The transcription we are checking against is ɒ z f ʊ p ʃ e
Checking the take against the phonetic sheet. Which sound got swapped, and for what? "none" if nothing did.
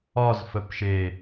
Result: ʊ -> ə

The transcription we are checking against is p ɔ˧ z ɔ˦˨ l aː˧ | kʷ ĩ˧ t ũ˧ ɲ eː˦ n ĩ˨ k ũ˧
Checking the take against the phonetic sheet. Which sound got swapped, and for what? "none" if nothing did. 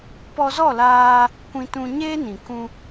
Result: none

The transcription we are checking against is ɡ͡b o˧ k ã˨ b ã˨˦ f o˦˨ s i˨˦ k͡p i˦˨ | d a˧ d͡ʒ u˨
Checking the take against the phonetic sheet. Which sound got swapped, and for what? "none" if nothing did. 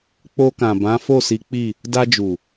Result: ɡ͡b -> k͡p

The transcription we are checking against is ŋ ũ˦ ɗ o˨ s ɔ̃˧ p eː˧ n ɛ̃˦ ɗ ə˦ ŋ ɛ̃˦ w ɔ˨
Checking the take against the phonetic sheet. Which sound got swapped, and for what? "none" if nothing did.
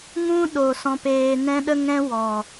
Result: none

